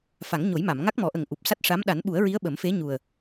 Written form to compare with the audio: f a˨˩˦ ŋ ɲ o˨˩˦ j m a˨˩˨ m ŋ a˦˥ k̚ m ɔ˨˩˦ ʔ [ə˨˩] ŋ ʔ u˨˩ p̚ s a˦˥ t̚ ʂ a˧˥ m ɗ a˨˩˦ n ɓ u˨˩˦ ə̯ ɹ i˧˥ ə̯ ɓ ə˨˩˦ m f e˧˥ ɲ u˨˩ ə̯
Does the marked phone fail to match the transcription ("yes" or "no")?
no